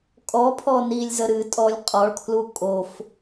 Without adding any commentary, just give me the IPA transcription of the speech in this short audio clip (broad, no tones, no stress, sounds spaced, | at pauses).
kʼ ɔ pʰ ɔ n i lʲ z ə ɾ ɨ tʼ ɔ lʲ qʼ ɔ ɭ kʰ l u kʼ o f